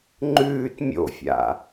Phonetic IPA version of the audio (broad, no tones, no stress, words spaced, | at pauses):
ŋ͡ǃʉːt mʲo̰fʲa̰